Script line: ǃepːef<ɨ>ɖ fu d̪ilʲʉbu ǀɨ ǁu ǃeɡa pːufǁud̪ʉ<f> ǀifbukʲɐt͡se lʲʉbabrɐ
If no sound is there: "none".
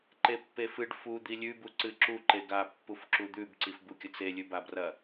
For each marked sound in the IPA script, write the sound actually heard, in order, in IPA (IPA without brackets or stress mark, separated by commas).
ɨ, b